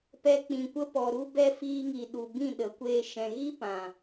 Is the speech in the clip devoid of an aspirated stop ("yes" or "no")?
yes